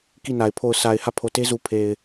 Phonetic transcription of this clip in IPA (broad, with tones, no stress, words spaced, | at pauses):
ki˦˨na˨ɪ̯ pʰo˦˨ʊ̯ sa˨ɪ̯ hä˦˨pʰo˨te˦zu˨ pʰe˨ɪ̯